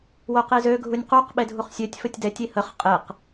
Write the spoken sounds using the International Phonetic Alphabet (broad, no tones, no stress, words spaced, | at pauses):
woqizø ɡʱunʲquq ɓedʱuχsʲøtʲ fətʲdɛtʲ ihəχ qʼeq